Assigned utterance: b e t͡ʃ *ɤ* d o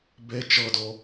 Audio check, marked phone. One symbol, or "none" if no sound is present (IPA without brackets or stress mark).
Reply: ɤ